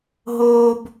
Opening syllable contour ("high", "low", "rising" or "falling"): high